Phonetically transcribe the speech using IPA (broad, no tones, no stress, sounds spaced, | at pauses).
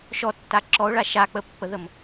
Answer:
ʃ ɔ tː a ǁ ɔ o̯ ɭ a ʃ a k͡p ə pː ə ð ə m